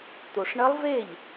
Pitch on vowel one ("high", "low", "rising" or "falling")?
low